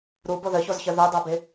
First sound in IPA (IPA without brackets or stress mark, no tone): ɾ